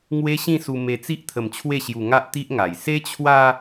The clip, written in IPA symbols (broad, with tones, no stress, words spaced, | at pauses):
ŋwe˦ɕĩ˥˧su˧ me˧t͡si˦ʔ t̪ʰə˧mt͡ɕʰwe˥˧ɕju˧ ŋa˦ʔ t̪i˦ʔŋa˨˩j se˦t͡ɕʰwa˦